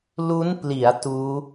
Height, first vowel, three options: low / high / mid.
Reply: high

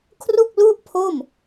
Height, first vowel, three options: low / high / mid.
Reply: high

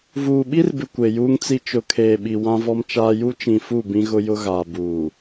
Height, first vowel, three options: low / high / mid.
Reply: high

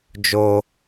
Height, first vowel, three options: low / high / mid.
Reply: mid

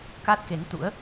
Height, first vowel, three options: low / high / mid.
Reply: low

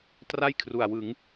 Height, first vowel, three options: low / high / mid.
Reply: low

